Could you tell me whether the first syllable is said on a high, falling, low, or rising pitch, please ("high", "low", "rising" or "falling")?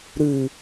low